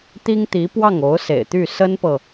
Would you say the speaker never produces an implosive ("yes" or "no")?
yes